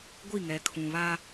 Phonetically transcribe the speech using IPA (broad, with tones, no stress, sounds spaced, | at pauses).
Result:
ɡʷ i˦˨ ŋ ɛ˨ kʰ ũ˨ β a˦